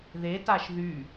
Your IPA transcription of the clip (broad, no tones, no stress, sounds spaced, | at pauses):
ð e t a ʃ ð y